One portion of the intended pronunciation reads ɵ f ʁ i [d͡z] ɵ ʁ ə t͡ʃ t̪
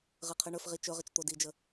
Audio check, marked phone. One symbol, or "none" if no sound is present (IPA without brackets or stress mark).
t͡ʃ